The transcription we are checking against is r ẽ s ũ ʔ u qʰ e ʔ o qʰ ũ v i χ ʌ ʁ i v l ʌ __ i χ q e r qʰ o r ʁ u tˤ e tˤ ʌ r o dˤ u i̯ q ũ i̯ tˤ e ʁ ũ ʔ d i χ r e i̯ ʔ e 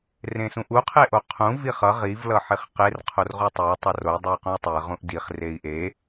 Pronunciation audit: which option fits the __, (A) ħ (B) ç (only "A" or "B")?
A